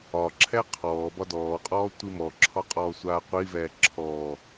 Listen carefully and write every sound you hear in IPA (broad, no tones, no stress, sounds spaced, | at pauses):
ɒ ǁʰ ɛ qʰ ɔː b ɒ d ɔː qʼ ɔː tʷ i m ɔ ǁʰ ɒ qʼ ɔː sʷ aː qʷ i v ɛː ǁʰ ɔː